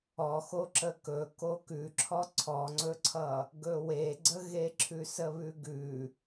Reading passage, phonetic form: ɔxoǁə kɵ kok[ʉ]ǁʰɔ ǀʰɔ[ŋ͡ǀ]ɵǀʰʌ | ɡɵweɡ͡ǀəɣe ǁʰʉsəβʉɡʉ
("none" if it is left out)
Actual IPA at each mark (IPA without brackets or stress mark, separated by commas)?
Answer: ʉ, ŋ͡ǀ